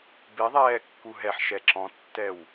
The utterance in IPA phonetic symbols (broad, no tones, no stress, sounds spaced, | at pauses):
b i ðˤ ɛː kː u ɦ ɛ ħ ʃ ɛ ǁ ɔ̃ tː ɛ w